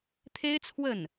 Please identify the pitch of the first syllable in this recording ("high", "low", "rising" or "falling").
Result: high